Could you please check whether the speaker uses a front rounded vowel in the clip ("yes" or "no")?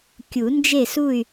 yes